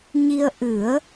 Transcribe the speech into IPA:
ɲi˧ə̯ʔɨ˨˩˦ə̯

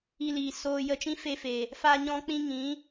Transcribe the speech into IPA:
i˧liː˨ soː˧ jə˧t͡ʃĩ˦fe˧fe˨ | fa˦ɲɔ̃˦k͡pĩ˦ ŋĩ˨˦

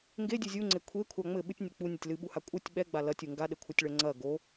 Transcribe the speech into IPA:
ŋɡedʲɨ zʲuŋ͡ǀe kʷʰekʷʰa ŋ͡mɘ ɓɨtʲnʲɛ k͡punʲɐtʲ lɨɓuha kʷʼɘtʲ ɓɛɡ͡ba lɐtʲu ŋɡaɗɘkʷʰɘtʲɭɛ ŋ͡ǀɐ ɡo

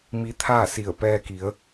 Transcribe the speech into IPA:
mi˧˥t̪ʰaː˥˨si˧˩ə̯ pɛː˧ki˩˧ə̯

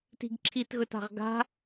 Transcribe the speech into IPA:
ti̤ɡǁʰitɣɵta̤ʁ ɡa̤

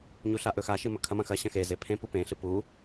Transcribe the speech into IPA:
ɲuɬaʔɵxa ʃɨmɵkʰɐ mɐ̃xɐ ɕɐ̃xe zepʰẽ pupẽ ɬɨpu

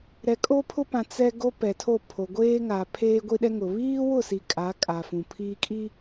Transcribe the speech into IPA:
ɾɛ˨kʼo˦pʰʊ˦pã˨ t͡sɛ˦ ɡo˦pɛ˨tʰo˦˨pʰo˨ ɡʷeː˦ŋa˨ pʰeː˦ ɡʷi˦ɗɛ˦ŋʊ˨ βiː˦wʊ˦˨si˨ kʼa˨˦kʼa˨ fũ˨pʰiː˦kʼi˦

